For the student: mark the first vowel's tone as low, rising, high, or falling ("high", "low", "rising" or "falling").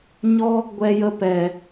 high